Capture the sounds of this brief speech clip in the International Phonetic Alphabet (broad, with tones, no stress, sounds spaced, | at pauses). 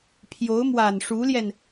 pʰ j o˧˥ ʊ̯ m w a˨˩ n ʂ u˧˥ l j ɛ˧ n